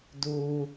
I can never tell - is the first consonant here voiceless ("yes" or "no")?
no